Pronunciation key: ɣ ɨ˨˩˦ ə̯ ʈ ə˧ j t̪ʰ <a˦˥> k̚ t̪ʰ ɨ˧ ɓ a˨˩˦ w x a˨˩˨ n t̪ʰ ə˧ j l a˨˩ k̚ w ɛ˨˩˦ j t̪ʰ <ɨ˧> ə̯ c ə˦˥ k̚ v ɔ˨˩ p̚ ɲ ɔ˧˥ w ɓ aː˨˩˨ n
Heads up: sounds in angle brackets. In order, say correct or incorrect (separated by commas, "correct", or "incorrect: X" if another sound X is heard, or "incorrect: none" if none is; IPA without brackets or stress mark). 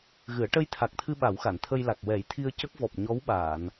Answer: incorrect: a˨˩, incorrect: i˧